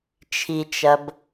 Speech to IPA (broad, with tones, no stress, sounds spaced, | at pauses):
t͡ʃʰ i˨ t͡ʃ ɐ˨ b